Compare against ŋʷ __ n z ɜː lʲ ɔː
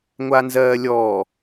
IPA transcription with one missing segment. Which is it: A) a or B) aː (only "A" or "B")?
A